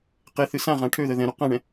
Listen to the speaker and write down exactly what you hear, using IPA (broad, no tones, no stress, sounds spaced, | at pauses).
q e θ ɨ s ã ʁ ã ʈʰ ø ð ə ð ɛ̃ ɾ u q ã ɳ ɛ̃